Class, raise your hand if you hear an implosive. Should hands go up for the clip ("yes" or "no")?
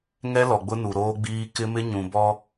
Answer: no